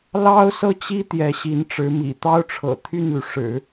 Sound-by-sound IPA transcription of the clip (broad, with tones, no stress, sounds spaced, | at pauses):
l ɑ˥ ʊ̯ s ɤ˥˩ t͡ɕ i˥ t̪ j ɛ˧˥ ɕ i˧˥ n ʈ͡ʂ ɻ̩˧˥ m ḭ˨˩ t̪ ɑ˥ ʊ̯ ʈ͡ʂʰ ɤ̰˨˩ t̪ʰ y˥˩ n l y˩ ʂ ɻ̩˨˩˦